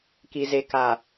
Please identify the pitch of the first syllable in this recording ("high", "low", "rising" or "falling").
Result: low